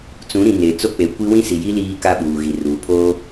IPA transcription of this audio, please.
t͡sũ˨˦ɾĩ˨ ne˨ t͡so˦k͡pe˨˦kʷi˦ wĩ˦si˨ji˦ liː˦ka˦ ɓuː˨ɣi˨ruː˨ pʰoː˦

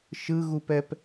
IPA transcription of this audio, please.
ʃɯɣupɛp

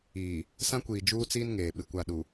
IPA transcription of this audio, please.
iː˨ | sã˦kʷiː˨ d͡ʒuː˦t͡siː˦n ŋeː˨ɓɪ˨kʷa˦˨ ɗu˨

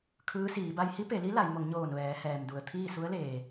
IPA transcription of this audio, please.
kʰɯː˧˥siː˩˧ ba˧jhi˧˥pe˩˧li˧˥ la˩˧jmo˩˧ŋ ɲoː˧˩nʋɛː˩˧hɛː˩mdu˩ə̯ t̪ʰiː˥˨su˧˥ə̯leː˩

